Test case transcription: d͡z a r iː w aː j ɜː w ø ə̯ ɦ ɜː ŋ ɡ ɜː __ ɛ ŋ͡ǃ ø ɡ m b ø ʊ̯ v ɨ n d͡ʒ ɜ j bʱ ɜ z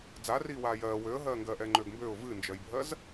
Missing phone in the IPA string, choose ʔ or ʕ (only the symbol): ʔ